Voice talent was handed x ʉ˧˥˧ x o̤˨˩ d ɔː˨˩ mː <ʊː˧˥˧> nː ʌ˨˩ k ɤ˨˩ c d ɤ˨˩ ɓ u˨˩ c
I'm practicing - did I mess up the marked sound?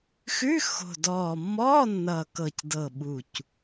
yes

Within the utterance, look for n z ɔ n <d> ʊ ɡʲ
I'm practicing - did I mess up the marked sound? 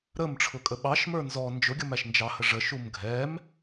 yes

